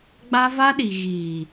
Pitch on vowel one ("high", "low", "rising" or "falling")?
high